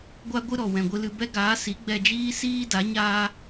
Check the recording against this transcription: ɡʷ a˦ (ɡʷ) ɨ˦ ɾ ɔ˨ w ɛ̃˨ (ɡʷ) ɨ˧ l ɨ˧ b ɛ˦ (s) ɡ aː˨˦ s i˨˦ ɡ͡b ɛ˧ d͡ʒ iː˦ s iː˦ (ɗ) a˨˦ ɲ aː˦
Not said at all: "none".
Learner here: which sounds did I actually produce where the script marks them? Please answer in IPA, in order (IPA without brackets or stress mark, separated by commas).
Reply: ɡʷ, ɡʷ, none, d